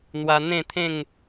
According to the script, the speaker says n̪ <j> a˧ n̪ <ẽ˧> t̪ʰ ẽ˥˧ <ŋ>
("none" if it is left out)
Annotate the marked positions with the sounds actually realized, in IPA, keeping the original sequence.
w, ẽ˥˧, ŋ

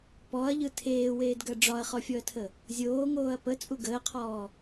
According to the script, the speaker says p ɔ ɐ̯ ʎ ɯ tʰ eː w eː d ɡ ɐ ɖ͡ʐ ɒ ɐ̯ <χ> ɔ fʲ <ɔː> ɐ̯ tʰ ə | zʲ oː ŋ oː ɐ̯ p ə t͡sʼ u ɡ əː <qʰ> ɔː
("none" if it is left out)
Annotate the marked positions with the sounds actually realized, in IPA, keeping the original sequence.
χ, ɔ, qʰ

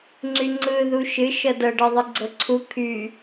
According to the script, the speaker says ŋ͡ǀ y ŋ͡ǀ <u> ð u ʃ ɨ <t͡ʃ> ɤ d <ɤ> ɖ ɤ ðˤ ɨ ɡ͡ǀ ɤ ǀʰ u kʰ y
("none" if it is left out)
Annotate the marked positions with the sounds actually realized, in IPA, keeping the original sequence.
ɯ, ʃ, ɤ

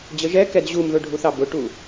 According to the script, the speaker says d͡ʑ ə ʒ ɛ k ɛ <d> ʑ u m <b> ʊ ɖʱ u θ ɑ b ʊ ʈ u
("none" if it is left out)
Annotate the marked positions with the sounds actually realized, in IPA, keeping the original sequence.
d, ð

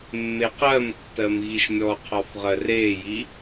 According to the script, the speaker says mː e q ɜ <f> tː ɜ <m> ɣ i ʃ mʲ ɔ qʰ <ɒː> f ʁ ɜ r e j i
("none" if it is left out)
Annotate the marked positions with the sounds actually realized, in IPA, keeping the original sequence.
m, m, ɒ

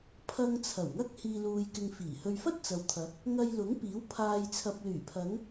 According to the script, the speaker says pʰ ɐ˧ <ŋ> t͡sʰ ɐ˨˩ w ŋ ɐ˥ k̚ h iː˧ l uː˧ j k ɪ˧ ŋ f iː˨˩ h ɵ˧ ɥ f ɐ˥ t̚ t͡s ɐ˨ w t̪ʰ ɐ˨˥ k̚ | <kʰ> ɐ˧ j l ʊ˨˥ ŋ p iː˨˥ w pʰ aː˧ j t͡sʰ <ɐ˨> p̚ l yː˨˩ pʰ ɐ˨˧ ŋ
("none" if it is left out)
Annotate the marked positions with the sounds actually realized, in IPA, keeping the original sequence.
ŋ, ŋ, ɐ˨

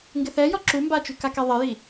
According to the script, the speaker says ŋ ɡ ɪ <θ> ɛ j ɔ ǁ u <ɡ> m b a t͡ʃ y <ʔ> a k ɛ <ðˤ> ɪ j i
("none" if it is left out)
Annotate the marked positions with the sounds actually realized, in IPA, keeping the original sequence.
θ, none, k, ðˤ

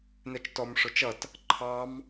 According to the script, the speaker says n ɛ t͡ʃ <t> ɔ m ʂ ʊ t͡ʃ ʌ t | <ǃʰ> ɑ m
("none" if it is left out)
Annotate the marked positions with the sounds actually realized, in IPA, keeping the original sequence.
t, ǃʰ

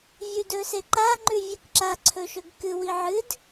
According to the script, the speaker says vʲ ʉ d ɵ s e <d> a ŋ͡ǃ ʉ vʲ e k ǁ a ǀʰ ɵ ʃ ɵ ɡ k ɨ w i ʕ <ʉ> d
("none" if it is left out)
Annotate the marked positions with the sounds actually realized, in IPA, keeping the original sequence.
ǃ, ɨ

